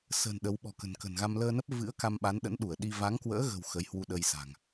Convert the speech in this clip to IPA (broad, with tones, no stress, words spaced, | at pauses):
sə̤ː˨˩n ɗə˨˦w ɓɔ̤˨˩kə̤˨˩nkə̤˨˩nɣa˧m ləː˧nə˦˥p̚vɨ̰˧˥ə̯ ka˧mɓa˨˦n ɗə̰˧˥nɗu˧˩ə̯ɗi˧ va˨˦ŋkwə̰ː˧˥ɣə̤˨˩w xə˨˦jhwu˧ɗə˧jsa̤˨˩ŋ